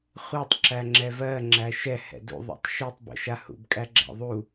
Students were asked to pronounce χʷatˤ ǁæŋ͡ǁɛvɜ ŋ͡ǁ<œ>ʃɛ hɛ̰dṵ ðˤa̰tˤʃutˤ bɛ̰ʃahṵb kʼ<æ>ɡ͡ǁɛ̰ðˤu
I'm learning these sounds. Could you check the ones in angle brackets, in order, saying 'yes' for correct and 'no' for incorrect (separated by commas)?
no, yes